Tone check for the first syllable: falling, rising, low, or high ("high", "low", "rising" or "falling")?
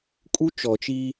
high